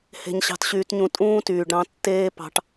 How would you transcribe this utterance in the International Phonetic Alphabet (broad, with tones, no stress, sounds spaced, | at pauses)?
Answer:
h e̤˦ ɲ ɕ ɑ̤˦ t ɕ yː˦ t ɲ ũ˦ tʼ ũː˦ t yː˨ ɖ ɾ ɑ̃˧ tː eː˦ p ɑ̤˧ ʈ